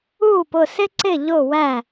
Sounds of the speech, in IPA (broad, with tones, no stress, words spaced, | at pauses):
uː˥˨pʊ˥˨sɪ˥ǀɪ˥˨ ʎʊ˥˨wæ˥˨